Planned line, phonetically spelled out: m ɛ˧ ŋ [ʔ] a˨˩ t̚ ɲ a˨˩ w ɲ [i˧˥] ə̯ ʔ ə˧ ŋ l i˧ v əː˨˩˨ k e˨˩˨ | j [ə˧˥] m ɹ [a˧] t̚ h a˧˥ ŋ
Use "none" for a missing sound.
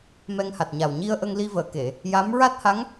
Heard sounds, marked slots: h, i˧, a˧˥, a˦˥

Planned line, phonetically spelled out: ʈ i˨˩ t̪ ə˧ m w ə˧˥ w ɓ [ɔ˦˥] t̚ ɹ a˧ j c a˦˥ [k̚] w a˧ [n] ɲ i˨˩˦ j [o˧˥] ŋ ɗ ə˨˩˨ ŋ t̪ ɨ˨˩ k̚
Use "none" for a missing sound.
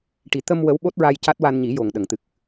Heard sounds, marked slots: o˦˥, t̚, n, o˨˩

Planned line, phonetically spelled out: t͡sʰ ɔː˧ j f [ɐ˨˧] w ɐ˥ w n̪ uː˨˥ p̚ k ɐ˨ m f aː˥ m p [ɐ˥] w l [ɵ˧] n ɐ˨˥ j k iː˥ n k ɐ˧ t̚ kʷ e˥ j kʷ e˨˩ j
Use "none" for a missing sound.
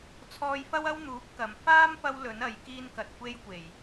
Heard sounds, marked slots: ɐ˥, ɐ˥, ɵ˨˥

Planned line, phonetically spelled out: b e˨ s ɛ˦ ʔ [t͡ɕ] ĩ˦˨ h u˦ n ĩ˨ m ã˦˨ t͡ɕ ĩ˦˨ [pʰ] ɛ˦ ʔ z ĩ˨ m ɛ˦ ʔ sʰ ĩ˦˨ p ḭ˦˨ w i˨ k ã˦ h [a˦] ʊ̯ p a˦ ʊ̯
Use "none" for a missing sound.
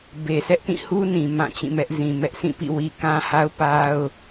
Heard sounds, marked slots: t, m, a˦

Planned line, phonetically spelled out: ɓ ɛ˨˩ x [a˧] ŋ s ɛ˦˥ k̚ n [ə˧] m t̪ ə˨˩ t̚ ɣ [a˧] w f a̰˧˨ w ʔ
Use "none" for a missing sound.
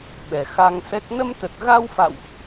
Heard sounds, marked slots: a˧, ə˧, a˧

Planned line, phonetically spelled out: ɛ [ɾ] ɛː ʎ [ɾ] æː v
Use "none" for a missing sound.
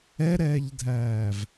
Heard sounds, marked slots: ɾ, dʱ

